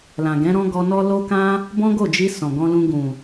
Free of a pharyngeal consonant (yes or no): yes